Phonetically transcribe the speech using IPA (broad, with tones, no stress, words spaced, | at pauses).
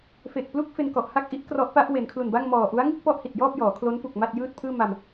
fe˨˩k̚plu˥˩k̚ fe˧nkɔ˨˩ʔha˥˩k̚ʔi˦˥ʔ krɔ˦˥ʔpa˦˥ʔ we˩˦nkʰlu˨˩nba˥˩ŋmɔː˨˩ ʔu˦˥a̯ŋɯ˥˩k̚ pɔ˥˩ʔhi˨˩t̚jɔː˥˩p̚jɔː˩˦ kʰlo˦˥npu˨˩k̚ ma˥˩t̚ jɯː˥˩t̚pʰɯː˥˩ ma˧m